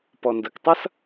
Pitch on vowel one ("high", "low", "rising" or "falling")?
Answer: low